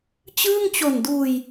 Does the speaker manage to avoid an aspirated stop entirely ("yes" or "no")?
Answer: yes